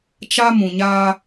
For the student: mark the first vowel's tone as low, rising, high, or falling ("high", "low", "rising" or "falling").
high